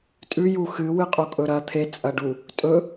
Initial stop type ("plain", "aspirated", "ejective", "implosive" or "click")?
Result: ejective